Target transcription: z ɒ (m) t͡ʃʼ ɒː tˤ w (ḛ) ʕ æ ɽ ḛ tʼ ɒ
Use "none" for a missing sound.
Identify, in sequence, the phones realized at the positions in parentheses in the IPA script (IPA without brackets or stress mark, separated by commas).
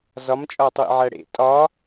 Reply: m, ḭ